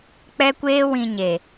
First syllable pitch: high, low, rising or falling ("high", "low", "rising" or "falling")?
high